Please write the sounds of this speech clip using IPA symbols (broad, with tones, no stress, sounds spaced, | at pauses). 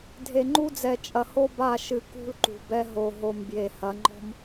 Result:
dʱ e˨ ŋ͡ǃ u˦ d͡z ɛ˨ t͡ʃʼ ɐ˨ h o˦ b a˦˨ ʃ ɨ˨ k ṳ˦ l ǃ ṳ˨ b ɛ˦ ɦ o˨ ɦ o˨ m b j e˨ h ɐ˨˦ ŋ͡ǃ ɔ̤˦ m